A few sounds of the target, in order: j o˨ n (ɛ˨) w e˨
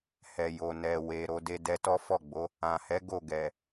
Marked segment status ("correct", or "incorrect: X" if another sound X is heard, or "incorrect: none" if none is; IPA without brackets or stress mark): correct